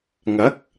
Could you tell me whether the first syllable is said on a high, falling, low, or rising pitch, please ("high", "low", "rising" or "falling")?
rising